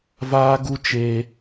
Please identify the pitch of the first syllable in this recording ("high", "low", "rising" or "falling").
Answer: high